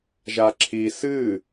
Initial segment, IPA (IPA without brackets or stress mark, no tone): ʒ